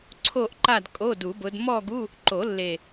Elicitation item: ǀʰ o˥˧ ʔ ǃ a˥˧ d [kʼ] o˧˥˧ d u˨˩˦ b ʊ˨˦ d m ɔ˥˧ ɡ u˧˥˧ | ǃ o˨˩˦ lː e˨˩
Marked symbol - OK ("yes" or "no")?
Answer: yes